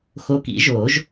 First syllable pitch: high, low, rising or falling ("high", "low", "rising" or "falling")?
rising